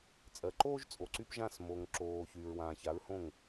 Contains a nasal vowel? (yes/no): yes